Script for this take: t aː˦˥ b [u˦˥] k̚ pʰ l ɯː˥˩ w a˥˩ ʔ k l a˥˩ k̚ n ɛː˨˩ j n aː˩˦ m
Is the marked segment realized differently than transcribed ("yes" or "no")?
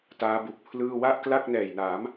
yes